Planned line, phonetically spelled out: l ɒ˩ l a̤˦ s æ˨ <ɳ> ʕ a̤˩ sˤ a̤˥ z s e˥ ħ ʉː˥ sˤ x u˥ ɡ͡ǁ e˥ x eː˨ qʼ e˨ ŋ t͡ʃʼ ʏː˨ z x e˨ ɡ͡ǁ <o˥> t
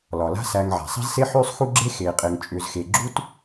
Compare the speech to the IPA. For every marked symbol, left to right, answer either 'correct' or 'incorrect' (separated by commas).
incorrect, incorrect